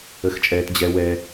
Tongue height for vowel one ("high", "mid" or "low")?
mid